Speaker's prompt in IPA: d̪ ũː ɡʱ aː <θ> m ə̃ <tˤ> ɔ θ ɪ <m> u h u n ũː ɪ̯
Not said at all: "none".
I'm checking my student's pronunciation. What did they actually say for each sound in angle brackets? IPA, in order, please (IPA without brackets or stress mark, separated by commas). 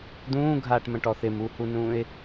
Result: ʈ, ʈ, m